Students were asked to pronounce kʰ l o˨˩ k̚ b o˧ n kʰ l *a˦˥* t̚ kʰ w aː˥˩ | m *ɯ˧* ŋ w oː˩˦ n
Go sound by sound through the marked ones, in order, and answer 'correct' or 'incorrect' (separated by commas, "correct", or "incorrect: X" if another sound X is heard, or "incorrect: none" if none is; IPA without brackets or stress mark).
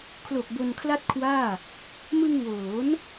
incorrect: a˥˩, correct